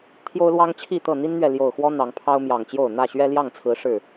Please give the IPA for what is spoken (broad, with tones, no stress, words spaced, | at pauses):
t̪ʰjo˦ʊ̯lwɑ˦ŋt͡ɕʰi˥˨t̪ɤ˥˨ n̪i˦nn̪ɥɛ˨ ljo˨˩ʊ̯xwɔ˦ n̪ɑ˨˦ŋpʰɑ˦ʊ̯mjɑ˨˩ŋt͡ɕjo˥˨ʊ̯ n̪ä˥˨ɕɥɛ˦ ljɑ˥˨ŋt͡sʰɹ̩˨˦ ʂɻ̩˥˨